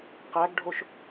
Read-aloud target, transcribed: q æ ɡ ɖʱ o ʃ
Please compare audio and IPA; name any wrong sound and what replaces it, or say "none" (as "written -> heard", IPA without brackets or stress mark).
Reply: none